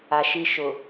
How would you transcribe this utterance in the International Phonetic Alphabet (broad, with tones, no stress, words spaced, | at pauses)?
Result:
a˨ʃi˦ ʃʊ˨